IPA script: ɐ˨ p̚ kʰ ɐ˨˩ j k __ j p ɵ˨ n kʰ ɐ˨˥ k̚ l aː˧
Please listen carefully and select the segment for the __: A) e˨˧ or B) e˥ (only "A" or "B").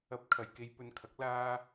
A